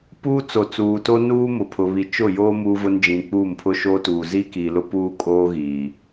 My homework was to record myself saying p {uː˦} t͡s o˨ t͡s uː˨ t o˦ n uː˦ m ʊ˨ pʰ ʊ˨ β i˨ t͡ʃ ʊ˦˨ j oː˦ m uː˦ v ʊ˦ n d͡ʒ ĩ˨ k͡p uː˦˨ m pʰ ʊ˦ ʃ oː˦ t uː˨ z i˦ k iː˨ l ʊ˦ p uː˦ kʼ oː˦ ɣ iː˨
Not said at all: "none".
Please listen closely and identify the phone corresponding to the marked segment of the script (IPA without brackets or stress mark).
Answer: uː˦